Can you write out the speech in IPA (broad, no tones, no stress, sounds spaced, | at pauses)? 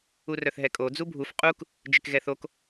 u r œ θ ɦ ɛ kʼ o d͡z u bʱ u f qʼ u k | d͡ʒ ɪ k ɣ ɛ θ o k